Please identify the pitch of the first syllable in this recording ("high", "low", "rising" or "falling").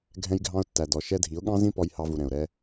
high